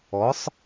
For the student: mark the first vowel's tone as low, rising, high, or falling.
rising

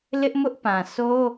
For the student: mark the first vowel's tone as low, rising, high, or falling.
high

